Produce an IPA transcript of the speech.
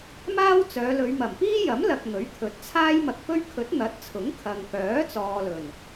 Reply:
m aː˥ w t͡s œː˨˧ l ɵ˨˧ ɥ m ɐ˨˩ m p iː˥ j ɐ˨˥ m l ɐ˨ k̚ ŋ ɵ˨˥ ɥ t̪ʰ ɵ˨ t̚ t͡sʰ aː˥ j m ɐ˧ k̚ p ɵ˥ ɥ kʰ ɵ˨˥ t̚ n̪ ɐ˨˥ t̚ t͡sʰ ʊ˨˥ ŋ kʰ ɐ˨ ŋ k œː˨˥ t͡s ɔː˨ l ɵ˨˩ n

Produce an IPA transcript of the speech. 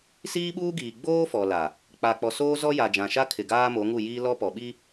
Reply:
s iː˦ ɓ uː˦ ɡ iː˨ ɡ͡b oː˦ f ɔ˨ l a˨ | k͡p a˨ k͡p ɔ˨ s oː˦ z ɔ˦ j a˨ d͡ʒ ã˨ ʃ a˦ kʰ ɪ˨ ɡ aː˦ m o˨˦ ŋ u˦˨ j iː˦ l ɔ˦ p ɔ˨ ɓ i˦

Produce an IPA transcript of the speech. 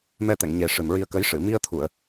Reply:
m ɛ˧ t̪ ɛ˨˩˨ ŋ ɲ e˨˩ ʂ ɨ˨˩ m ɹ i˧ ə̯ k ə˧˥ j ʂ ɨ˨˩˨ m i˧ ə̯ t̪ʰ u˨˩˨ ə̯

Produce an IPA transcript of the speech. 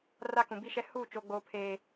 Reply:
r a˦ k ũ˨ b i˦ ʃ ɛ˦ h uː˦˨ t͡ʃ o˨ ɡ͡b oː˨ pʰ eː˨

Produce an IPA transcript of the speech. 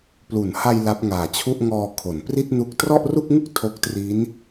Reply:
p l u˩˦ n h a˧ j l a˦˥ p̚ ŋ aː˨˩ t͡ɕʰ u˥˩ ʔ ŋ ɔː˧ kʰ o˩˦ n p r i˥˩ t̚ n u˦˥ k̚ t r ɔ˥˩ ʔ r u˥˩ k̚ ŋ u˥˩ k̚ tʰ o˦˥ k̚ t r i˦˥ n

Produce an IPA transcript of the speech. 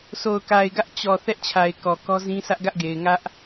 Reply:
sʰ o˨ ʊ̯ k a˨ ɪ̯ ɡ ä˦ ʔ t͡ɕ ɔ˨ θ ɛ˦ ʔ t͡ɕʰ a˨ ɪ̯ k ɔ˨ k ɔ˦ z ĩ˦ sʰ ä˦ ʔ ɡ ä˦ ʔ ɡ e˨ ɪ̯ ŋ ä˦ ʔ

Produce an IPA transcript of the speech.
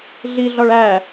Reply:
ɮ i ɮ ɒ ɭ æ

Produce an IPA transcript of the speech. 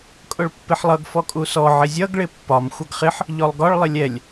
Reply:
kʼ ʊ ɭ pː ɪ ħ lˠ ʌ ɡ f ɔ kʼ u s ɔ ʕ ɪ zʲ ʌ ɡ ɭ ɪ pː ɒ m xʷ ʌ ɡ χ ɪ ħ | ʎ ɔ lˠ ɡ ɒ ɭ lˠ ɪ lʲ ɛ lʲ

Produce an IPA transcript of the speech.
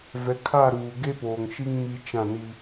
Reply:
v ɛ˨˦ kʰ a˦˨ ɾ uː˨ ɡ e˦ p oː˨ ŋ ʃ i˦ ŋ m i˦ t͡ʃ ã˦˨ n i˦

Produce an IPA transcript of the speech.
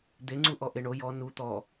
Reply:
d̪ e ŋ͡ǀ u ʔ ɔ ʔ e ɳ o j ɔ n u t̪ ɔ

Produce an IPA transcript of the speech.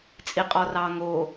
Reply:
t͡sʼ i qʼ ɔ r ɑ ŋ o

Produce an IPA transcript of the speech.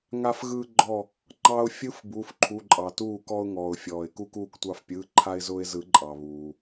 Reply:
ŋ a˧ f ɣ ɯː˧ ɡ͡ǃ ɔ˧˩ | ŋ͡ǃ ɑ˧ ʊ̯ fʲ ɯ˦˥ f b u˩˧˩ f ǃʰ u˩˧˩ ǃʼ ɑ˩ t uː˧˩ k ɔ˧ ʊ̯ ŋ ɔː˩ ʊ̯ fʲ ɔː˩ ɪ̯ k u˧ k uː˧˩ k tʷ ɑ˧˩ f pʲ ɯː˩˧˩ ǃʰ a˧ ɪ̯ z ʊː˧ ɪ̯ z ɯ˨˩˦ ǃʼ ɑ˩ β uː˩

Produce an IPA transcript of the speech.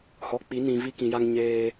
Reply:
h ɔ˨ k͡p i˨˦ n ĩ˨ v i˦ k ĩ˨ j a˦ ŋ ɲ eː˦

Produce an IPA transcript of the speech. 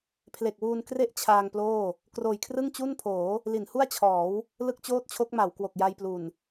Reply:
pʰ l e˨˩ k̚ w uː˧ n k r e˥˩ ʔ t͡ɕʰ aː˧ ŋ p l oː˥˩ | k r oː˨˩ j kʰ r ɯ˥˩ ŋ t͡ɕ u˥˩ n pʰ oː˩˦ | l i˩˦ n h u˥˩ a̯ t͡ɕʰ ɔː˩˦ w | l ɯ˥˩ k̚ t͡ɕ oː˥˩ t̚ t͡ɕʰ o˦˥ k̚ m a˩˦ w k w o˨˩ k̚ j a˧ j p l u˨˩ n

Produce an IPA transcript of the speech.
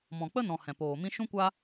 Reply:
m ɔ̃˨ k͡p ə˦ n ɔ̃˨ h ɛ̃˨ p oː˨ m ĩ˧ ʃ ũ˦ kʷ a˦

